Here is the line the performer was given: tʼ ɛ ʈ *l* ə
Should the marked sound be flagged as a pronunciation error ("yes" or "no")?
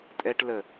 no